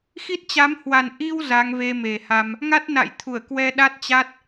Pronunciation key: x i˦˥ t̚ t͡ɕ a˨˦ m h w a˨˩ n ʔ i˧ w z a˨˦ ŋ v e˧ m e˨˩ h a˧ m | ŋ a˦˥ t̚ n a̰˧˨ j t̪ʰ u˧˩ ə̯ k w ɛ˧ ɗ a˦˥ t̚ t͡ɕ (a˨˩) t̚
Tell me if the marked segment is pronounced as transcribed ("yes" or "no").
no